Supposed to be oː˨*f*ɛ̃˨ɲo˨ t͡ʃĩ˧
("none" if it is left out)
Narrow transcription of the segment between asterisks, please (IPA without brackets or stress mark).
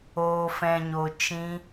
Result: f